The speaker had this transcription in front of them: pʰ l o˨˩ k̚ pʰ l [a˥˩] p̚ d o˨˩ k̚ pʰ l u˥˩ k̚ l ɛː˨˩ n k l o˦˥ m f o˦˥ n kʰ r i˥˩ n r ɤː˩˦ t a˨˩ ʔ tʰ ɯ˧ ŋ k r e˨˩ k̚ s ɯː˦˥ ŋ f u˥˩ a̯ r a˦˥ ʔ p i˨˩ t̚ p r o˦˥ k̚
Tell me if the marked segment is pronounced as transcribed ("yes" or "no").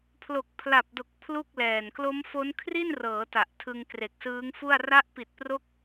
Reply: no